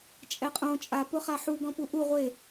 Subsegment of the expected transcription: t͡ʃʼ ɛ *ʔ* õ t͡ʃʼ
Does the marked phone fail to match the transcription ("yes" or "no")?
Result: yes